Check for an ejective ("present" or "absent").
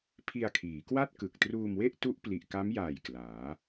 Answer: absent